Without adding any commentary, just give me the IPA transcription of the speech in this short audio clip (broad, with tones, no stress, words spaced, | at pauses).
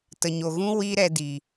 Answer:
tə˨ɲo˨ɣũ˦ wi˦ɾɛ˧di˨